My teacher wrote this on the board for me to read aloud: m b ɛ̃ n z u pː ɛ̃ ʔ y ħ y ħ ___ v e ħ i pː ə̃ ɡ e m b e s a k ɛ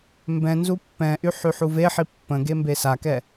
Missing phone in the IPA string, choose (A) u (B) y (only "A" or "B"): A